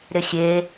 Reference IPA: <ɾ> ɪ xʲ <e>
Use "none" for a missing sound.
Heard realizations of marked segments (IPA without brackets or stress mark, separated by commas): ɾ, e